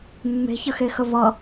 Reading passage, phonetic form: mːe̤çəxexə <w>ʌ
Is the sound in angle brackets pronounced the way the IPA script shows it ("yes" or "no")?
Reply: no